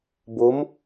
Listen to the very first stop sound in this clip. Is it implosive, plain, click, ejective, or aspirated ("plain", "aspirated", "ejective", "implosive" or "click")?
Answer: plain